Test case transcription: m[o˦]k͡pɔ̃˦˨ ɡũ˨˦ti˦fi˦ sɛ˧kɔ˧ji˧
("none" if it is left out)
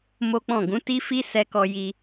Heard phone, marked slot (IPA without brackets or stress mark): o˦